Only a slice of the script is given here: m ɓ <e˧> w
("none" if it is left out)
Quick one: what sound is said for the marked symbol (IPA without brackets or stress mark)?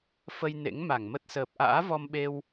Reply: e˧